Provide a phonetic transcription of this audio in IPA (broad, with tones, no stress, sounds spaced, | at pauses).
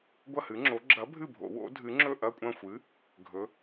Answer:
ɡʷ ɐ˥˨ h ɨ˨˥ ŋ͡ǁ o˨˥ ɡ͡ǁ ɐ˨˥ bʱ ɨ˥˨ bʱ o̰˨˩˦ w o̰˨˥ dʱ ɨ˨˥ ŋ͡ǁ ɵ˥˨ ʔ ɐ˥˨ kʷʼ ɐ̃˥˨ xʷ ɨ˨˥ | ɡʱ ɵ˨˥